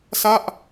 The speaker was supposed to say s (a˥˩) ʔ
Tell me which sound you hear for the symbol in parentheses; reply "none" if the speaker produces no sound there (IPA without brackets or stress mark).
a˥˩